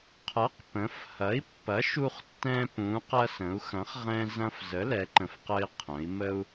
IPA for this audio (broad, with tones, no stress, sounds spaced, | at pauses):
qʰ ɐ˩˥ q p ə̃˩˧ f h ɐ˩˥ i̯ pː ɐ˩˥ ʃ u˧ χ tː ɛ̃˧ p ũ˩˧ q ɐ˧ s ə̃˩˧ u̯ x ɐ̃˩˥ χ ʁ ɛ̃˧ z ɐ̃˧ f z ə˩˥ l ɛ˩˧ ǃ ə̃˩˧ f q ə˧ i̯ qʰ ə̃˩˧ i̯ m ə˧ u̯